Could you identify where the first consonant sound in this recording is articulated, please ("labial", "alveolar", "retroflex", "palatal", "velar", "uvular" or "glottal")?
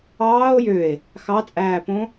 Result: palatal